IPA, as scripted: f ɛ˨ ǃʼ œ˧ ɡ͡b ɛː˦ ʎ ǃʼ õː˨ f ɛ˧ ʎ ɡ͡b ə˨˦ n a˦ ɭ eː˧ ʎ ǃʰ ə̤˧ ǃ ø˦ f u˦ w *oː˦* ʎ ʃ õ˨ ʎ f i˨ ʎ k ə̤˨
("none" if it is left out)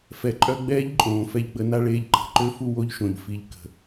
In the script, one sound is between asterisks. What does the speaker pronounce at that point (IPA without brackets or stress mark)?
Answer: o˦